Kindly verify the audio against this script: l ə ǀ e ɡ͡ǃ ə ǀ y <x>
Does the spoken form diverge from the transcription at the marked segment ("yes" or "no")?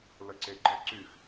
no